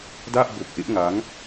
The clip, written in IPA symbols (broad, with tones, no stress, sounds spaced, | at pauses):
d a˥˩ ʔ b o˨˩ k̚ ʔ e˦˥ ʔ ŋ a˦˥ ŋ